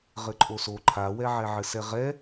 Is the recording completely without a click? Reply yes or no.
no